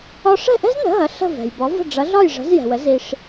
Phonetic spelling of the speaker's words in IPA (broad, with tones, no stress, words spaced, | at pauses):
ɒ˧ʂɛ̤˥˩ʔɛ̤˥znə̤˩˥ ɦɐ˩˥ ɬə̤˥˩vɛ̤˩j bɒ˩˥və̤˥˩ ɖ͡ʐɐ˩˥ɮɒ˥˩jʐə̤˩˥z jɛ̤˩wə˩˥ zi˧ʂ